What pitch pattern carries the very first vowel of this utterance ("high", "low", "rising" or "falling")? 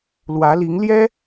rising